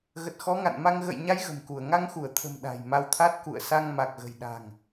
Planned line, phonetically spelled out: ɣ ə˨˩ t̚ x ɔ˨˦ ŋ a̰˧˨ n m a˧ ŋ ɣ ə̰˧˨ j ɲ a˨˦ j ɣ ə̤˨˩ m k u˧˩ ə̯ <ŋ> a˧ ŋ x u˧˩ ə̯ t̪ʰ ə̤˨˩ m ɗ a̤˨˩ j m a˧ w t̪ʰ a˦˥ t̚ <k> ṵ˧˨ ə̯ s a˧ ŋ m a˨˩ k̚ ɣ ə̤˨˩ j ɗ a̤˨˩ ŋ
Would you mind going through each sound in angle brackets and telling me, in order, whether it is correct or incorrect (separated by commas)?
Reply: correct, correct